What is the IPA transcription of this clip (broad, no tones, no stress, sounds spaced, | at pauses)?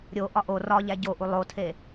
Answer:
ɾʲ o ʔ ɒ ʔ o r ɒ ʎ æ ɟ o ʔ u lˠ o tʰ e